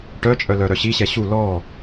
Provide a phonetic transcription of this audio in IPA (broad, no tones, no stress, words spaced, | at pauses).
ʈœt͡ʃʼœ lœɾœɕiɕɛ ɕu lɔ